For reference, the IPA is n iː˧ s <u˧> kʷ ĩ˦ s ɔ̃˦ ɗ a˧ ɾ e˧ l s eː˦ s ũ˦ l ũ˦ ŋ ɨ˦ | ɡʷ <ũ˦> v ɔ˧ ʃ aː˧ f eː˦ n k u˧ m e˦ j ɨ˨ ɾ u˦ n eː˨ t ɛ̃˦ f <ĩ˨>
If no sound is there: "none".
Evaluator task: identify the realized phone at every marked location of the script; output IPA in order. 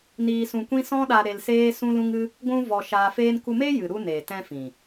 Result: ũ˧, ũ˦, ĩ˨

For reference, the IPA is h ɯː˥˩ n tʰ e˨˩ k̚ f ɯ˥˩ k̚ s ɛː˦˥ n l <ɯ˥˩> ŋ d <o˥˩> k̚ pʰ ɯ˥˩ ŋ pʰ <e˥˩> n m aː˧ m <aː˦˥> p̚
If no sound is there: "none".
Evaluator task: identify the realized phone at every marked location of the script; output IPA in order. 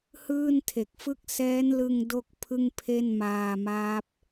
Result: ɯ˧, o˥˩, e˥˩, aː˦˥

